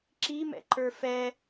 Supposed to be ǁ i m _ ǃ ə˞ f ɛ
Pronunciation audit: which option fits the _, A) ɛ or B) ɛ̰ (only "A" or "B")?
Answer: B